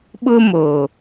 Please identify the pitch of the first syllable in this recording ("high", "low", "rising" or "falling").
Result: high